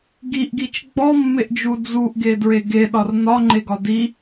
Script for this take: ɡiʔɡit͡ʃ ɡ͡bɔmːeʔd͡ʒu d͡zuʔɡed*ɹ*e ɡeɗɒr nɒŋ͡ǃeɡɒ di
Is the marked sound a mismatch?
no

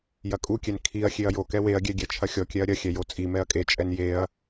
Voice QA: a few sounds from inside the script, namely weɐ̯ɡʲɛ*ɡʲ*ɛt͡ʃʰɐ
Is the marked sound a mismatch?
no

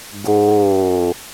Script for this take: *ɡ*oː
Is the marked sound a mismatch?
no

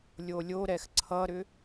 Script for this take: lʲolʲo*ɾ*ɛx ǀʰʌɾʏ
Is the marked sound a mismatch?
no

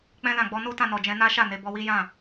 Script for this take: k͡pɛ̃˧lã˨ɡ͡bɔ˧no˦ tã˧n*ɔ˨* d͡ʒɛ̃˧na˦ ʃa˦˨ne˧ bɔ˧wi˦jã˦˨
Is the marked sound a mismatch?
no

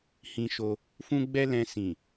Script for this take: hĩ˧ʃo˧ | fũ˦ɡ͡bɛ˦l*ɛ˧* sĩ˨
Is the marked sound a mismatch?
yes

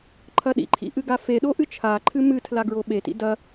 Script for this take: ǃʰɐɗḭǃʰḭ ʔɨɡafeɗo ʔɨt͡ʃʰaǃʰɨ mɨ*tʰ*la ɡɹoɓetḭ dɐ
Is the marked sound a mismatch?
no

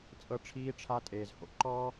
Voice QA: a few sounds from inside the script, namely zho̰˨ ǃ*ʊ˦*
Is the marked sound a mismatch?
yes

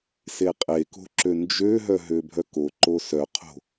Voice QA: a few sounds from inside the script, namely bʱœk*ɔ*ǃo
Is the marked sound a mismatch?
yes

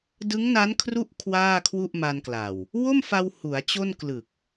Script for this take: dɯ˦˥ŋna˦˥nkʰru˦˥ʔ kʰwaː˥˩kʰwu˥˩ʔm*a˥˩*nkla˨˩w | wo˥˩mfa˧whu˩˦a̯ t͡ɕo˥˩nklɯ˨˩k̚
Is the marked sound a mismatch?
yes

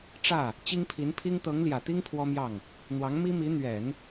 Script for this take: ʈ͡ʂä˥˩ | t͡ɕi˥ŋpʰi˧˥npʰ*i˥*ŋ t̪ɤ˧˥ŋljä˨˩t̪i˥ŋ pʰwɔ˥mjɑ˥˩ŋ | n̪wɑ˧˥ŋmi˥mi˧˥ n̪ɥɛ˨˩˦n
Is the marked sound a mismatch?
no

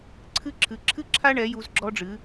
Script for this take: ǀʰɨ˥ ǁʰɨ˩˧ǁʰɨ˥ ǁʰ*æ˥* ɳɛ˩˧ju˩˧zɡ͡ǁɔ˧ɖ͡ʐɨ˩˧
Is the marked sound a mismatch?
yes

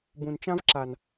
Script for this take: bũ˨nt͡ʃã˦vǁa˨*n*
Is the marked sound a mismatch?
no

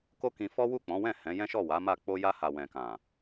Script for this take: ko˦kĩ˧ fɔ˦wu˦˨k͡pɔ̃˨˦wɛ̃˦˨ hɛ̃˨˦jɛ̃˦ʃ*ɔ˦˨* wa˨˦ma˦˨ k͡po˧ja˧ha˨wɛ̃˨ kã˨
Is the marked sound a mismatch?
no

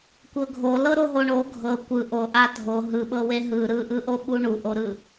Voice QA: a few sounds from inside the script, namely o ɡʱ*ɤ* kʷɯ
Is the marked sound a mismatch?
no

